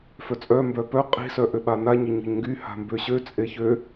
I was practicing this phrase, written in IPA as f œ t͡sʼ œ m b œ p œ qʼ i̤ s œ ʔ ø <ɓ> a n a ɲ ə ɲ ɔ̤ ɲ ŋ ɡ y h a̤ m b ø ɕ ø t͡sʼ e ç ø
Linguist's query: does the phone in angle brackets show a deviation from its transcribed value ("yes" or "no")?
no